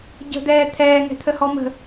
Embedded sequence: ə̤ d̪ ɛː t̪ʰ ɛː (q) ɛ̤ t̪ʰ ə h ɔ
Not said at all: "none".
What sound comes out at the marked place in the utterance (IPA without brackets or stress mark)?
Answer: ŋ